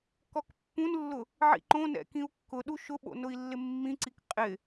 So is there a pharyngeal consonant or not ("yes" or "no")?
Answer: yes